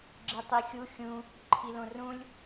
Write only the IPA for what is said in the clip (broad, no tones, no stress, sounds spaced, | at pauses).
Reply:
ɡ͡ǁ i tˤ i xʲ u xʲ ũ | ǃʰ i l õ r ũ lʲ